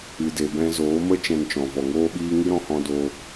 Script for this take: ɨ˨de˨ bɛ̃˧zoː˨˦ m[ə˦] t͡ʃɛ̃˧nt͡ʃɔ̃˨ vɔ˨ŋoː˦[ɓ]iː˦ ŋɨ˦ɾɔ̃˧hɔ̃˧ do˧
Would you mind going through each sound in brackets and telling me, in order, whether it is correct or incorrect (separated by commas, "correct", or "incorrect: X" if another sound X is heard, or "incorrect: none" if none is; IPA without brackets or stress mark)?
correct, correct